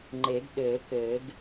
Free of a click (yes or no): no